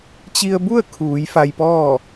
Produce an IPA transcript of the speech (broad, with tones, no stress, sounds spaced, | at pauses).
t͡ɕ i˧ ə̯ b u˥˨ ə̯ kʰ uː˩˧ j f a˧ j p ɔː˥˨